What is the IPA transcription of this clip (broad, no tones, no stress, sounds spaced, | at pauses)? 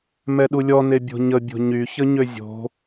m ɛ ɗ u lʲ ɔ n e bʲ o̤ ɲ ə bʲ o̤ ɲ y ç ə ɲ ø zʲ o̤